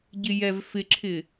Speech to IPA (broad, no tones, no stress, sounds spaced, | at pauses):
ɟ ɪ j ɛ v f ɪ ǁʰ ɪ